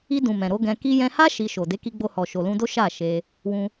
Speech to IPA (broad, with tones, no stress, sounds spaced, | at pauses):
i˧ d ũ˨ m ɛ̃˨ ɾ o˨˦ ɡ ɛ̃˧ k i˧ j ɛ̃˧ h a˦ ʃ i˧ ʃ o˨ d e˨˦ k i˧ ɡ͡b o˧ h ɔ˨ ʃ o˨ l ũ˧ d o˦ ʃ a˦˨ ʃ e˧ | w ũ˧